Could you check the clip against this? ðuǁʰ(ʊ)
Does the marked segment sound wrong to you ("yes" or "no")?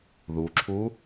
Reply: yes